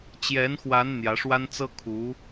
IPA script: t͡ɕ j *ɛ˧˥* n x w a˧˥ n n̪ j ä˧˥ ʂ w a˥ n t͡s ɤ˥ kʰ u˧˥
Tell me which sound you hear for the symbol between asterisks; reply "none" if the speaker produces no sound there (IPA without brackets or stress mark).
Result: ɛ˧˥